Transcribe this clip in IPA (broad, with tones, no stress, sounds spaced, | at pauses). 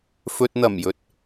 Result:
f ɵ˨ t̚ n̪ ɐ˨˩ m j ɵ˨˥ t̚